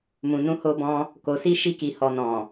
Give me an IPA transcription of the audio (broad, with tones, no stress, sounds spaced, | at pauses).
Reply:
m ũ˨ n ũ˨˦ h o˧ b ɔ̃˧ | k o˨ s i˧ ʃ i˧ k i˨ h ɔ˨ n ɔ̃˨